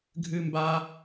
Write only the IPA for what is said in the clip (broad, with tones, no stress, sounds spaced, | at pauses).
ɡʱ ɨ˦ m b a˦